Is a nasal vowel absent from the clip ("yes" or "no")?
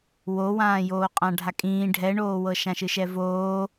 no